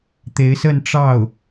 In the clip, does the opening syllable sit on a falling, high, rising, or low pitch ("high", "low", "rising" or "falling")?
rising